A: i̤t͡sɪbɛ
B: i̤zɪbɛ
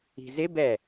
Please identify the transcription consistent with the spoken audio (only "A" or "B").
B